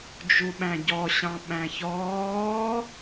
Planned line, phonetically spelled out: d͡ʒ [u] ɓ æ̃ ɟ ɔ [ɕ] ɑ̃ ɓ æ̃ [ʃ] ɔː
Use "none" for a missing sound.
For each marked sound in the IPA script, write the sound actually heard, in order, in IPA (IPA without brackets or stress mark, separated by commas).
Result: u, ɕ, ç